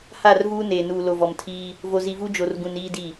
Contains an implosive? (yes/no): no